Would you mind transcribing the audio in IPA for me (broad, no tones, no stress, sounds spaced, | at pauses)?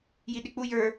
j i ɗ ɪ k͡p u j ə˞